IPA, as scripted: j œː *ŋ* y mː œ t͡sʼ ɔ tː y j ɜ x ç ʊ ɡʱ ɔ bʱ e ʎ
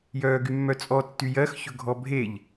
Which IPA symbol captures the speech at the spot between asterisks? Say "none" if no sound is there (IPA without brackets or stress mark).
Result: ɡ